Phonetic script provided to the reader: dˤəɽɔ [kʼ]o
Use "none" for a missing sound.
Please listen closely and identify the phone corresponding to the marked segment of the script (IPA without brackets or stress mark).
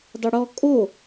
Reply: kʼ